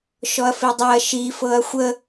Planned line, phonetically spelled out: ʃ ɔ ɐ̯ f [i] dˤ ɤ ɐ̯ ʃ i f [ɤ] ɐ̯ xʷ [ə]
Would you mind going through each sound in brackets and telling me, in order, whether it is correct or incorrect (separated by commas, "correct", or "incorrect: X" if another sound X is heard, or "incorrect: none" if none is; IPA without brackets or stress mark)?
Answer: correct, correct, correct